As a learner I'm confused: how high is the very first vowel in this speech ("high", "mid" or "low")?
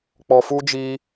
mid